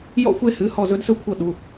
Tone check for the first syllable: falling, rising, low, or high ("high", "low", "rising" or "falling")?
falling